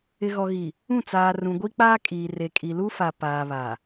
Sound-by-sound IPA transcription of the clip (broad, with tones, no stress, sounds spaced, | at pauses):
ɪ˨ ɣ ɔ˨ ɣ i˨ | ũ˦˨ t͡s aː˨ r ũ˨ ɡʷ i˦ k͡p aː˦ kʼ iː˨ r e˨ kʼ i˨ l u˦ f a˨ p aː˨ β a˨